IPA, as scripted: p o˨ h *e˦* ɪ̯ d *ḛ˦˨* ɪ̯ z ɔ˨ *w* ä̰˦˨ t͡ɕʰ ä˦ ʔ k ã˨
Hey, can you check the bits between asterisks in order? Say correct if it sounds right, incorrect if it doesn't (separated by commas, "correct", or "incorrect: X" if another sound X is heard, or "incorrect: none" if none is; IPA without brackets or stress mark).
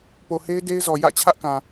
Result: correct, incorrect: e˦, incorrect: j